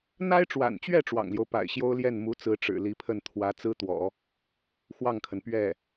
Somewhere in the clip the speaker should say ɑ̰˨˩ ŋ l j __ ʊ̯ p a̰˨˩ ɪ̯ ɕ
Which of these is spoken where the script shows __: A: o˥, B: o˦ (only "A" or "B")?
B